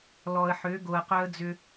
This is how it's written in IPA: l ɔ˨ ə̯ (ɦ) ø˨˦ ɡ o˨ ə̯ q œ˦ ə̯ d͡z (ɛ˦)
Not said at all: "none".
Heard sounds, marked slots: ħ, ʏ˦

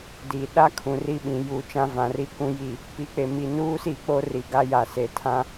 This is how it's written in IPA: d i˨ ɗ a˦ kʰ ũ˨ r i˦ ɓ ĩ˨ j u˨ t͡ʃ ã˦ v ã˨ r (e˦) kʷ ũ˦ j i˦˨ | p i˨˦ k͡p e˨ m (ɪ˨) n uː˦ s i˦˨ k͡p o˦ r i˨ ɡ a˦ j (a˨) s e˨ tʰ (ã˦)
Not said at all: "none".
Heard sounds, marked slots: i˦, i˨, a˨, ã˦

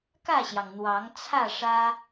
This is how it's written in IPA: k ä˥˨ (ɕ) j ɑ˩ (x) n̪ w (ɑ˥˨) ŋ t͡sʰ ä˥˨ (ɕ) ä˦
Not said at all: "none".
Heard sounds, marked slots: ɕ, ŋ, ɑ˨˦, ʂ

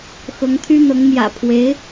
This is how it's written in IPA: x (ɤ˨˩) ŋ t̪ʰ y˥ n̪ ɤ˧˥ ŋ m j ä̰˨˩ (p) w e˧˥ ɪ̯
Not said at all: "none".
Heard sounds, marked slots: ɤ˧˥, pʰ

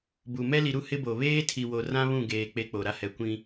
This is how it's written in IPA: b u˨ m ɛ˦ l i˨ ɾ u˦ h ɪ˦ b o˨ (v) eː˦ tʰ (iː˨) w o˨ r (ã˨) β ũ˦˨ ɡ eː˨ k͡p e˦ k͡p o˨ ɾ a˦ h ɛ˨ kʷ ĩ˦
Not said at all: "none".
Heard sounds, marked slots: β, i˨, ã˦

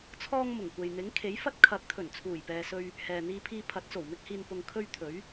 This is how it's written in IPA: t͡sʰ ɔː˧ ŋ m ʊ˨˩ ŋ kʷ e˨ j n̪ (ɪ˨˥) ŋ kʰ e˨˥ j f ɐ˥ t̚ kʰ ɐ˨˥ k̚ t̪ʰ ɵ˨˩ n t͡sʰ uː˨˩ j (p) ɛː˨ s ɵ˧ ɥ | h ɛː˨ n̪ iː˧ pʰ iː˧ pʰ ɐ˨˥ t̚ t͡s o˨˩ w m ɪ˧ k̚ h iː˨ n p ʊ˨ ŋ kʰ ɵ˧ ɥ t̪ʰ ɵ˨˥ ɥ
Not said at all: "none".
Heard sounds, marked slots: ɪ˨˥, p

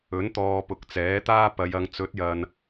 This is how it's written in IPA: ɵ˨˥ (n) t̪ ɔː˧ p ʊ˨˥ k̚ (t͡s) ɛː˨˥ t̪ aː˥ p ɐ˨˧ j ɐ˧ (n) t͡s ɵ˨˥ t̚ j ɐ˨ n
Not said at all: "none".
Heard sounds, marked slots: n, t͡s, ŋ

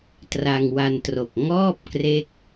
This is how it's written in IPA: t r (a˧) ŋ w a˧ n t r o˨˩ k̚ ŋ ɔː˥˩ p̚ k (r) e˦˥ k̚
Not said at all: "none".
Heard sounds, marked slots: a˧, r

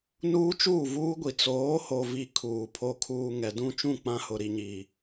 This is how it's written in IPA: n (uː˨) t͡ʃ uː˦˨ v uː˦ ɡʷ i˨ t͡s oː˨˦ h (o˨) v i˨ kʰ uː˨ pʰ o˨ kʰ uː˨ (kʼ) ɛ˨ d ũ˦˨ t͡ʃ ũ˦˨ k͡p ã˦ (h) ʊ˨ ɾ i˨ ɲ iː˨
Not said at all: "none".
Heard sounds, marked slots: uː˦, o˨, ŋ, h

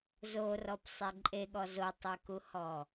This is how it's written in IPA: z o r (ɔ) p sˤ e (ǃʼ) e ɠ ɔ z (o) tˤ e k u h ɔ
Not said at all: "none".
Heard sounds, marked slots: ɔ, ǃʼ, o

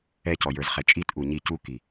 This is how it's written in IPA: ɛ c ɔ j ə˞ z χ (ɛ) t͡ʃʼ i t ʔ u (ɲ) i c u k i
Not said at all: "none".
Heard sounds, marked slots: ɛ, ɲ

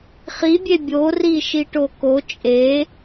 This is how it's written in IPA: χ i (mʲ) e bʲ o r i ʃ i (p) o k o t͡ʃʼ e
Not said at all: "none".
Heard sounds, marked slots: bʲ, ʈ

